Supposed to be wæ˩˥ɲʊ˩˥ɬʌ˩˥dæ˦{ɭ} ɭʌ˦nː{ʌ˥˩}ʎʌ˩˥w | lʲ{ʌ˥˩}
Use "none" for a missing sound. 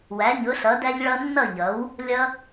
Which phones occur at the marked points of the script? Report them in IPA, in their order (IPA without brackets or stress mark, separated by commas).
ʎ, ʌ˥˩, ʌ˦